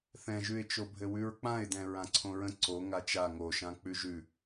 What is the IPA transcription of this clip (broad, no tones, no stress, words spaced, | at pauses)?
θɛ̃ʒʉɪ̯t͡ʃobʱɘ wʉɹk͡pãɪ̯dɛ̃ ɹãǀʰõɹə̃ ǀo ŋat͡ʃa ŋoʃã k͡pʉʒʉ